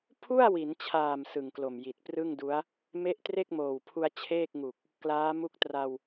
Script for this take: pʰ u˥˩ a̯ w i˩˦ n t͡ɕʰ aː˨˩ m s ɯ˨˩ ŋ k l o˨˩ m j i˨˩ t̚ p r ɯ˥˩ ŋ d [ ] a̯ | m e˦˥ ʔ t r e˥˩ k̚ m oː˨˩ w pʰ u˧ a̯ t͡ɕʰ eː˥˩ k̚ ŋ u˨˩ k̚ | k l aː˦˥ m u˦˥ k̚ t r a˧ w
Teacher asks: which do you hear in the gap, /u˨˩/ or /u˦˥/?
u˦˥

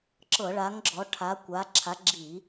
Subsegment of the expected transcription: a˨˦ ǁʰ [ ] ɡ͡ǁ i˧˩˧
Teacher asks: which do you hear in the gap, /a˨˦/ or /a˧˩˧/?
a˨˦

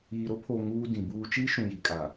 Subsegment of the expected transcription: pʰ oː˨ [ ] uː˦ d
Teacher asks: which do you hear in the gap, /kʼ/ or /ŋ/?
ŋ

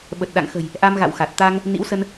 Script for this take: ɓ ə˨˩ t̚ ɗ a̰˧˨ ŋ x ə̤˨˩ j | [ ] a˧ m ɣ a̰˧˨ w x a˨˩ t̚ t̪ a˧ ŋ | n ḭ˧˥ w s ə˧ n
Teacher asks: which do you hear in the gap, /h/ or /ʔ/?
ʔ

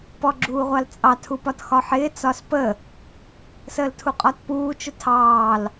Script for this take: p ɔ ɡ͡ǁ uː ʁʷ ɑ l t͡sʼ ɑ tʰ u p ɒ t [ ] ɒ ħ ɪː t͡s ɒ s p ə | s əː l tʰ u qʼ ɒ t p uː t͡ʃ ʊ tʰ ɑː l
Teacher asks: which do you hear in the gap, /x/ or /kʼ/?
x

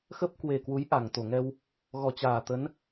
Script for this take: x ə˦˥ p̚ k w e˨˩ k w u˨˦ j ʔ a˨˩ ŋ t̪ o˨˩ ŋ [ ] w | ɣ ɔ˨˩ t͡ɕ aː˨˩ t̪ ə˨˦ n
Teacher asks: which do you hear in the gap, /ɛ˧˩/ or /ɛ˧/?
ɛ˧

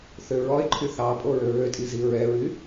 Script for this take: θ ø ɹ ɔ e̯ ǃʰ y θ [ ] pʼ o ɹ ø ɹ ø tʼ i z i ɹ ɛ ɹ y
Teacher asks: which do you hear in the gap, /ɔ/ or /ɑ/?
ɑ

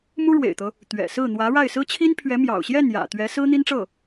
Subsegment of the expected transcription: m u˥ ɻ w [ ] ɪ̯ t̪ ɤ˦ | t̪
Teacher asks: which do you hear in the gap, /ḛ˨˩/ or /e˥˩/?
ḛ˨˩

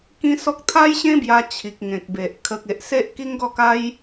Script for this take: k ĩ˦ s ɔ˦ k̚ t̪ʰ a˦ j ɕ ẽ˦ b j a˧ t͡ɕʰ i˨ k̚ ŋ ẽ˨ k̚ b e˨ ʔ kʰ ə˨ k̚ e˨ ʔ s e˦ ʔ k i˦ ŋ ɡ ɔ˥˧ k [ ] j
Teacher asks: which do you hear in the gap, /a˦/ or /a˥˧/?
a˦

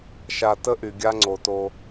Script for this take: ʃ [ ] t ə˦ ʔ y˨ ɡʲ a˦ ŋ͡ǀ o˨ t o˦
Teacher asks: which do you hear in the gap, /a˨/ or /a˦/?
a˨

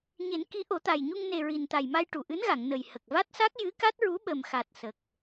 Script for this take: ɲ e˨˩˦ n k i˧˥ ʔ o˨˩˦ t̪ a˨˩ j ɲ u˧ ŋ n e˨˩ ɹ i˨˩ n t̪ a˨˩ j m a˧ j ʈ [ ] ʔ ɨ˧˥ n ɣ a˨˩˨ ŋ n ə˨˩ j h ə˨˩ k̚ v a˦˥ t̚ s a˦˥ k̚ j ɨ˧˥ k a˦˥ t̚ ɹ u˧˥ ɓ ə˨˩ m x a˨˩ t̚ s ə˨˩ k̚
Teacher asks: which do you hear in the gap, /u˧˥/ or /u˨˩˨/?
u˨˩˨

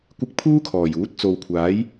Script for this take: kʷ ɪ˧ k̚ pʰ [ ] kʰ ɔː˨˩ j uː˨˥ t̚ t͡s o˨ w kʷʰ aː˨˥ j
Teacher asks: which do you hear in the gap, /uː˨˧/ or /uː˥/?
uː˥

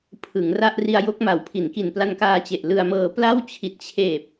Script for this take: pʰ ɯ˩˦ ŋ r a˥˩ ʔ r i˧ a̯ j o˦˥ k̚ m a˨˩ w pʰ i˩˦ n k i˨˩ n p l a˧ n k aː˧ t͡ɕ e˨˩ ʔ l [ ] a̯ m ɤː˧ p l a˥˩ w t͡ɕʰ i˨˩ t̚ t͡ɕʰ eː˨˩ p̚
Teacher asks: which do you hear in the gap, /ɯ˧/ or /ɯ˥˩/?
ɯ˧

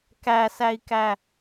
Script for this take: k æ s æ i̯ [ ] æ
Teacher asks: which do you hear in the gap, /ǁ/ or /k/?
k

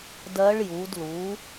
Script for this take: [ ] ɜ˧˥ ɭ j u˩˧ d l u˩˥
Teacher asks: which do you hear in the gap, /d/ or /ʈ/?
d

